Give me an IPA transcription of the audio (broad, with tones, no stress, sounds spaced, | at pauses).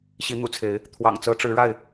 ɕ i˨˦ n̪ ṵ˨˩ t͡sʰ e˨˦ ɪ̯ | t̪ʰ w ɑ̰˨˩ ŋ t͡s ɤ˨˦ ʈ͡ʂ ɻ̩˨˦ ɻ a˥˨ ɪ̯